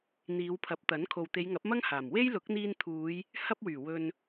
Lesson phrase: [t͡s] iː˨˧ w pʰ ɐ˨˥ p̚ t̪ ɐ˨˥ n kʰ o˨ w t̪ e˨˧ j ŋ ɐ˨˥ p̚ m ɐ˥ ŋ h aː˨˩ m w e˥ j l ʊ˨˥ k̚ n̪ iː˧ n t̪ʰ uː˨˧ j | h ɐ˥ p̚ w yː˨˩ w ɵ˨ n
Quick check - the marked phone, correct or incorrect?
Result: incorrect